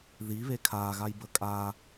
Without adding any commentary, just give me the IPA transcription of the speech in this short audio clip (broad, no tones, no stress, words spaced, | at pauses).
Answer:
ðiβe kʰaɣajbə kʼa